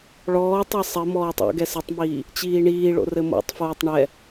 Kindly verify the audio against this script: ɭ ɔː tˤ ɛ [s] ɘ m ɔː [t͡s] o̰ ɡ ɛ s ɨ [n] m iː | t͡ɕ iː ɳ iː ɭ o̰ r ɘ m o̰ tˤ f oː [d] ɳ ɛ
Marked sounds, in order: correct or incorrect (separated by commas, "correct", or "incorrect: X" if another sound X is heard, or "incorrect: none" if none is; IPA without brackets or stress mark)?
incorrect: sˤ, incorrect: tˤ, incorrect: tˤ, incorrect: tˤ